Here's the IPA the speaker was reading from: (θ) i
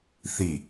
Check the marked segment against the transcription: correct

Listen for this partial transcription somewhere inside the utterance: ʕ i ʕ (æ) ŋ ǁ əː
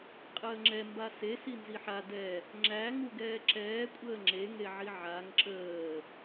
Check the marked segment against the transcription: incorrect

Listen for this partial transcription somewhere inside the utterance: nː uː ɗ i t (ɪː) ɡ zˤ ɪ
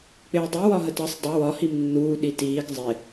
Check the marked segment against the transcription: incorrect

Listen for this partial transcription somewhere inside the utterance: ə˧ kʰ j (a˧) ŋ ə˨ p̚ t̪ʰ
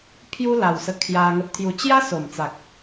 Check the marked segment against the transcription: correct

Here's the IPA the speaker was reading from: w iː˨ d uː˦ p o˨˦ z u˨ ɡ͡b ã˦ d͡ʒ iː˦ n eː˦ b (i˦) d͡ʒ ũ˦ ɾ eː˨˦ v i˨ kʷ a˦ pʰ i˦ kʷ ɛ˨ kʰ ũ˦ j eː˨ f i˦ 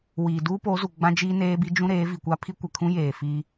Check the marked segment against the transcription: correct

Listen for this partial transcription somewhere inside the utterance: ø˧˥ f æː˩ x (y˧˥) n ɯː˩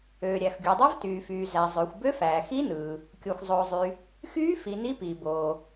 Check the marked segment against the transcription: incorrect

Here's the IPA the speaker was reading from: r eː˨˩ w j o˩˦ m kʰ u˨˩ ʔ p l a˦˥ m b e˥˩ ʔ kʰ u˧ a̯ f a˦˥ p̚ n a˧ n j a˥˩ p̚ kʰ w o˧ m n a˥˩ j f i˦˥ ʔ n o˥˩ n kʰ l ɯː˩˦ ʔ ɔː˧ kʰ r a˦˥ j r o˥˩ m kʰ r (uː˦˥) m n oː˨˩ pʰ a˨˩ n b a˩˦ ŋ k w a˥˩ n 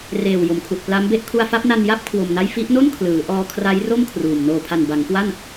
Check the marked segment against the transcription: incorrect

